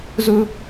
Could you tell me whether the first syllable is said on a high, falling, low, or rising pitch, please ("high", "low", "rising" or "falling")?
high